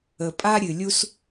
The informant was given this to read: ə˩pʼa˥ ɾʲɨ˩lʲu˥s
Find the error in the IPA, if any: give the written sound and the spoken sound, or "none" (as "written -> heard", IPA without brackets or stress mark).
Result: none